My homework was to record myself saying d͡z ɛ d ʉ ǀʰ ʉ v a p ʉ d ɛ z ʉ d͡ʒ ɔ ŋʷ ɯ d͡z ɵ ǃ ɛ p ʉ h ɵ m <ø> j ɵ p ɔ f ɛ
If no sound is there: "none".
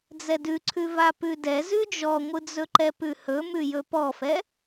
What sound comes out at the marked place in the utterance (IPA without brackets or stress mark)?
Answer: ʉ